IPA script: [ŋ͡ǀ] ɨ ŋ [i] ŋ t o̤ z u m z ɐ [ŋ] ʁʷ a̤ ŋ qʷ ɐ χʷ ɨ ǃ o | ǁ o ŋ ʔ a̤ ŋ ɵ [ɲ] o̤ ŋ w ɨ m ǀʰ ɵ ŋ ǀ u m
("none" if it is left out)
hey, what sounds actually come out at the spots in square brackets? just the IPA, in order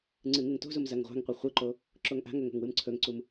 ŋ͡ǀ, ɨ, ŋ, ŋ

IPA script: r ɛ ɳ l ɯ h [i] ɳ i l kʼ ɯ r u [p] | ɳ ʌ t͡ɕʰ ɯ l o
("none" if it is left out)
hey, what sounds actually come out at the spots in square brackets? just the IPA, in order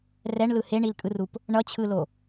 e, p

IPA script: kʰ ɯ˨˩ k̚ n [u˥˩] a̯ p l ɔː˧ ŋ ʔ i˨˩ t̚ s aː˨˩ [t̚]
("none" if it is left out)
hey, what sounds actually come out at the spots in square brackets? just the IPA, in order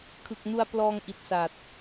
u˧, t̚

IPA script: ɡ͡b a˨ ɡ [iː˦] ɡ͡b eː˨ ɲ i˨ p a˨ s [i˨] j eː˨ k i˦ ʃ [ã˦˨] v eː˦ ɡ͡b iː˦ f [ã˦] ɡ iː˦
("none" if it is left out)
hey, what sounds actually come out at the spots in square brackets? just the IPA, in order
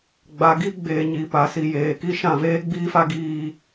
i˦, i˨, ã˦˨, a˦

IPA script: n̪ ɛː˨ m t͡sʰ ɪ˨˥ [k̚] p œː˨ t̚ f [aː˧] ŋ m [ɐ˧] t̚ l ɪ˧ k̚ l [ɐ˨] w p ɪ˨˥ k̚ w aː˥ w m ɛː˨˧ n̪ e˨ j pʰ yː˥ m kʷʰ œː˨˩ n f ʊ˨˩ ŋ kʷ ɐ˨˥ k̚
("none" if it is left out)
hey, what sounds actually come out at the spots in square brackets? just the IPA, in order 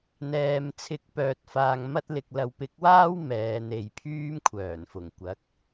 k̚, aː˧, ɐ˥, ɐ˨

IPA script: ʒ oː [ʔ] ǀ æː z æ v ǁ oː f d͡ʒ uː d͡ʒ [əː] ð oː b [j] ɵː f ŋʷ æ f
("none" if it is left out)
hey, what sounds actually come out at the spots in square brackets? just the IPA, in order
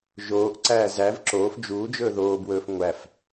ʔ, ɵː, w

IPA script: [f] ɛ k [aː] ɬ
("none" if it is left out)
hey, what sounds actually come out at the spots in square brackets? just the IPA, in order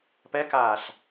p, aː

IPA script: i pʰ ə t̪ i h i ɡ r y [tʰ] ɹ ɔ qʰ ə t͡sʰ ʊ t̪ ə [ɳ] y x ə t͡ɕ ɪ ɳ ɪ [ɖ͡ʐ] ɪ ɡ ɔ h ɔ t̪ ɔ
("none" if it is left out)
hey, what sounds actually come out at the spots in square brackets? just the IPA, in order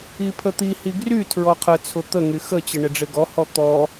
tʰ, ŋ, ɖ͡ʐ

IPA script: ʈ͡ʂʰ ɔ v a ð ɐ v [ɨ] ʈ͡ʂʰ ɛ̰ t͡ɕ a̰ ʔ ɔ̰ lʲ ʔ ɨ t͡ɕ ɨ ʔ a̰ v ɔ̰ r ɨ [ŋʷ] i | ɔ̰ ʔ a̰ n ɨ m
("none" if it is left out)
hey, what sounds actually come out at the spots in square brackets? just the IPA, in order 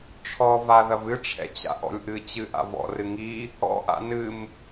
ɨ, ŋ

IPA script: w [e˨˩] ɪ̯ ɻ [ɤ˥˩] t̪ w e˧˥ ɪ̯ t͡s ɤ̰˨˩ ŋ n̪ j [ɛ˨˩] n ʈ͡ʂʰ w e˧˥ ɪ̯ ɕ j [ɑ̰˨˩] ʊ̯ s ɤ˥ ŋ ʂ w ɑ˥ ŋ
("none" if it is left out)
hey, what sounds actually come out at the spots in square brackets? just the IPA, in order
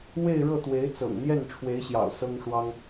e˥˧, ɤ˥˩, ɛ˥˩, ɑ̰˨˩

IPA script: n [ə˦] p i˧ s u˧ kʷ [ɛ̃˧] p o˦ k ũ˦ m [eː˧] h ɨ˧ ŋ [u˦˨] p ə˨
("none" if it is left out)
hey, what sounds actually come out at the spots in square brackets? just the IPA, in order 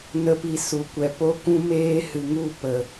ə˦, ɛ˧, eː˦, u˦˨

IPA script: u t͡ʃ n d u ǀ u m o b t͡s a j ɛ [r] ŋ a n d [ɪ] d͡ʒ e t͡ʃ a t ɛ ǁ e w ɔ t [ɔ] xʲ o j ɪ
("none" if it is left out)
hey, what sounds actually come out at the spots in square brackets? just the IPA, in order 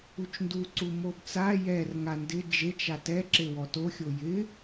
r, ɪ, o

